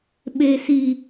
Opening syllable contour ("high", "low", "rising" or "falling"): low